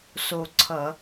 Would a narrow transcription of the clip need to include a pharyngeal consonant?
no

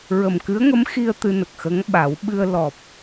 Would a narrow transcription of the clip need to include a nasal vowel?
no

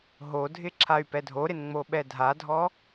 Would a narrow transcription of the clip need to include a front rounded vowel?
yes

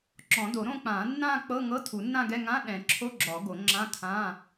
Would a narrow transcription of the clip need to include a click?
yes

